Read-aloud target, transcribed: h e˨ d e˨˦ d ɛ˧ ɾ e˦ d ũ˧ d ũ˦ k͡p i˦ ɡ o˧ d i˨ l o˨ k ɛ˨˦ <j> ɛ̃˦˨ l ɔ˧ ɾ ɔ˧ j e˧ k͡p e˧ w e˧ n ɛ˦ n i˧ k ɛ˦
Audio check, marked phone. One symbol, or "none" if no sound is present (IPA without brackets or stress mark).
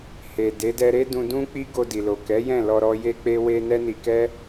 j